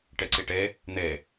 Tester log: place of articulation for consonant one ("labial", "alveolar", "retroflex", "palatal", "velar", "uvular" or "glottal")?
retroflex